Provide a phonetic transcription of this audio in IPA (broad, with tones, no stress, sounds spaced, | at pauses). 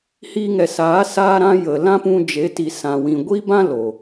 h iː˧ ŋ ɛ˨ s aː˨˦ s aː˧ ɾ ã˧ j ə˨ l ã˦ p ũ˧ d͡ʒ e˨˦ t i˨ s ã˨ w ĩ˨ ɡʷ i˦ b ã˦ l o˨